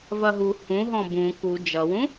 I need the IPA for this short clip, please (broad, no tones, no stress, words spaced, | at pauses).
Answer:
vɐɦu hũ ɦɔ̃bũ ku d͡ʒʌwũ